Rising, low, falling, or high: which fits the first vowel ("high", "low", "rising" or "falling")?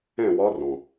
falling